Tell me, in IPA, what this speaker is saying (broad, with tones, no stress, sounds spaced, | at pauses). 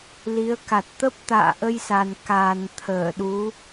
l i˨˦ ə̯ k a˨˩ t̚ t̪ ə˦˥ p̚ t̪ a̰ː˧˨ ʔ ə˧ j s a˨˩ n k a˨˩ n t̪ʰ əː˧˩ ɗ u˨˦